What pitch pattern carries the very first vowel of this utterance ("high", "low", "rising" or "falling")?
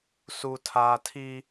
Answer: high